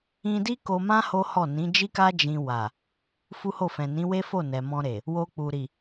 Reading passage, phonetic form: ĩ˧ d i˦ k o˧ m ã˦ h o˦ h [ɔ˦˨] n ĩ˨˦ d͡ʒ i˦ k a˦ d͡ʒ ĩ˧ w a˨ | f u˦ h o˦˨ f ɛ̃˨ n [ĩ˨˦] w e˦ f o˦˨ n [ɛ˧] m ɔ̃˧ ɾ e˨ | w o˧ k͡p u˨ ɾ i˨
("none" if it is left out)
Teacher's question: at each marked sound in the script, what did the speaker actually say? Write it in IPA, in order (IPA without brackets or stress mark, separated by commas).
ɔ˦˨, ĩ˨˦, ɛ˨